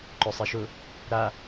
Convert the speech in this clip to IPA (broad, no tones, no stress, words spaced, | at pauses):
ǃœsˤiʃʊ | ɾa